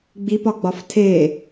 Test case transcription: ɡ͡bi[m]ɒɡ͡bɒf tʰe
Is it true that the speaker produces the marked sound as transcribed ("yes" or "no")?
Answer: no